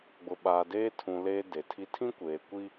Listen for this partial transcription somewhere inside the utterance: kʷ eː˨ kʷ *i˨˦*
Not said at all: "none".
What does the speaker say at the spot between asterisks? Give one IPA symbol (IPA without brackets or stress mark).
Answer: i˦